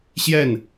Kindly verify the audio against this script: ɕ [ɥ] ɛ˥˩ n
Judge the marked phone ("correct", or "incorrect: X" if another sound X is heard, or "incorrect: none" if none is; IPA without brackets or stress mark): incorrect: j